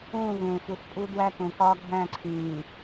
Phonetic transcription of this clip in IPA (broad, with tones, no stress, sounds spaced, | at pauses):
ũː˦˨ v ẽː˨ f u˨ s pʼ u˦ d w æ˦ k ũː˨ k ɒː˦ ɡʱ æ̃˦˨ ǀʰ ĩː˨